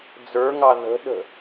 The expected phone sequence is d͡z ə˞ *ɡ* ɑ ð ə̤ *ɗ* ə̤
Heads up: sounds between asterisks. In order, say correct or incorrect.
incorrect: ŋ, correct

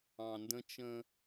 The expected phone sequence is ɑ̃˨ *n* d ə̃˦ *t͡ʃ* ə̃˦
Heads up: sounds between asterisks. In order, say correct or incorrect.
correct, correct

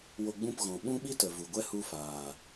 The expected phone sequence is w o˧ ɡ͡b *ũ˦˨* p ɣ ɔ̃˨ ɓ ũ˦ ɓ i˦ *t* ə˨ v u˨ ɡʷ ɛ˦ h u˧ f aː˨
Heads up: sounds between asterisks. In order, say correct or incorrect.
correct, correct

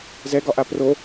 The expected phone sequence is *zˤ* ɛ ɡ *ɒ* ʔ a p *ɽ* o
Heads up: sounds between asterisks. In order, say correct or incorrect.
incorrect: z, correct, incorrect: r

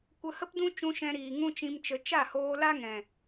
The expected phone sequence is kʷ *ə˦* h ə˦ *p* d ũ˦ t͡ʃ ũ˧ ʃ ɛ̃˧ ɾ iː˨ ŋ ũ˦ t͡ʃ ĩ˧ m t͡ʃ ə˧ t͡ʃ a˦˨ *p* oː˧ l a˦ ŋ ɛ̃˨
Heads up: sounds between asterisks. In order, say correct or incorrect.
incorrect: ə˧, correct, incorrect: h

